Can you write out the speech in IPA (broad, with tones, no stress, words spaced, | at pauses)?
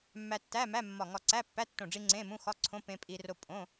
mːæ˧tːæ˧˥˧mæ˧˥˧ mːɒ˧˩ŋɒ˧ ǀæ˧˥˧pːæ˧˥˧tːõ˧˩ɖ͡ʐi˧ ŋ͡ǀẽ˧˥˧mũ˧˥˧ xɒ˧˥˧ǀʰõ˧˥˧ pẽ˧pʼi˧ro˧ pʼõ˧˥˧